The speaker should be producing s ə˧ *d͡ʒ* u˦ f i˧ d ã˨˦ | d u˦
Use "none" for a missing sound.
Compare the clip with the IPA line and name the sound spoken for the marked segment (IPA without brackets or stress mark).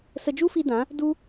d͡ʒ